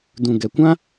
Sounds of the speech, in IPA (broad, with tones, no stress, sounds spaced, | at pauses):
d ũ˨ ɡ ɛ˨ kʷ ã˦